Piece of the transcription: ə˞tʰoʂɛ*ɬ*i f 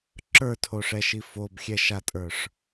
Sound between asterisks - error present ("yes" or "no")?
yes